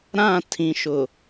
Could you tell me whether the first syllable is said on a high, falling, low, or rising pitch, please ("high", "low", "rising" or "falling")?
falling